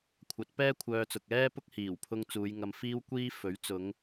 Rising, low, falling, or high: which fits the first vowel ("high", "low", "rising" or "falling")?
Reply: rising